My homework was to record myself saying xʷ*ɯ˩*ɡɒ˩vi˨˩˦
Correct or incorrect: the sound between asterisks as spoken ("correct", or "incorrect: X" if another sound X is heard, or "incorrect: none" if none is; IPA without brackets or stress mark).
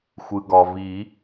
correct